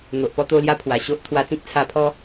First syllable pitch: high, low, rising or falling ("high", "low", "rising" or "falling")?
low